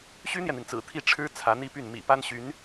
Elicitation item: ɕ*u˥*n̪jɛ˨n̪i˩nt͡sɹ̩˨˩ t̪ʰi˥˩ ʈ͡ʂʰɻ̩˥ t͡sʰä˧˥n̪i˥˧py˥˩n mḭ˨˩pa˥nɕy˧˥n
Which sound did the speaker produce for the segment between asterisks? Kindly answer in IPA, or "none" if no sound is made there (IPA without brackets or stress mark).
y˥